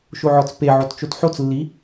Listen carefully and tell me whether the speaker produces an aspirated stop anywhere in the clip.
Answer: no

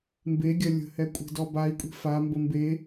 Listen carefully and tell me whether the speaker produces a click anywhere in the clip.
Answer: no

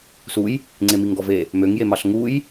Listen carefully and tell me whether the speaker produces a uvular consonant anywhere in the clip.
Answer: no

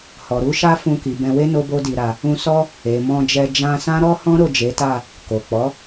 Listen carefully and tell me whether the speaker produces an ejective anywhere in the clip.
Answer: no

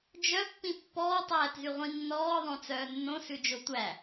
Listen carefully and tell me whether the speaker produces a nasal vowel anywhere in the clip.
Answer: yes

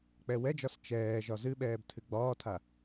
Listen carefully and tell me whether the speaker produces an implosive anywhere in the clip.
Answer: yes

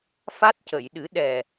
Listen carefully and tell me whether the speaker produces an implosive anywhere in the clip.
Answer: yes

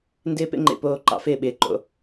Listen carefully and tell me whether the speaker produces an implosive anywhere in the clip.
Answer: yes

